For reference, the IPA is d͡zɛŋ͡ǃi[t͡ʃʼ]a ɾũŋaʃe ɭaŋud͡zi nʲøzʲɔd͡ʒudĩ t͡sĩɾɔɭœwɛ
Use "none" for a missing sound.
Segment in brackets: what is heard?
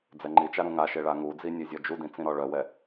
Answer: t͡ʃ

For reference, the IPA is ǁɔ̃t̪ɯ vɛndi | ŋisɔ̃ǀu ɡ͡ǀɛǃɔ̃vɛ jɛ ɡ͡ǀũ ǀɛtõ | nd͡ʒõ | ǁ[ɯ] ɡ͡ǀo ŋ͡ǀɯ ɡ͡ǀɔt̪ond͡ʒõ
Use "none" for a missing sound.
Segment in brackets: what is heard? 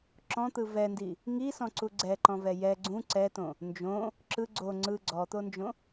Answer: ɯ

